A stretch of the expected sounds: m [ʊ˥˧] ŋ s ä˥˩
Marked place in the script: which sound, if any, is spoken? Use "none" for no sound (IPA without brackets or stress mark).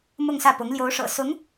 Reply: ʊ˥˧